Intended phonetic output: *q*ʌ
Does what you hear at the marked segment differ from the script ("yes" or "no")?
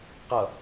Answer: no